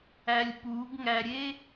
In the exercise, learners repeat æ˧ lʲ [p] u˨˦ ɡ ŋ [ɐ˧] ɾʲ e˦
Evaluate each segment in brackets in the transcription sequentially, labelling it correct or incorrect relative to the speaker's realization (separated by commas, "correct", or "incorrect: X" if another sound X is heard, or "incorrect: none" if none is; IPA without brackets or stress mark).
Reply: correct, incorrect: æ˧